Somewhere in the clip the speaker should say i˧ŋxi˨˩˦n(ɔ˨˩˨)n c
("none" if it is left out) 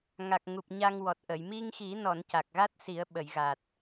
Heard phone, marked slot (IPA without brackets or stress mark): ɔ˨˩˨